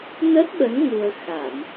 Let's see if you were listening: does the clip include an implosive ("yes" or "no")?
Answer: yes